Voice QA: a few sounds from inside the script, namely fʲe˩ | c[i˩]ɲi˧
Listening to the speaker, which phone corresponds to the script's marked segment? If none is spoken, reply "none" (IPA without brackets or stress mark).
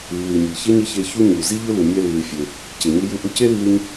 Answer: e˩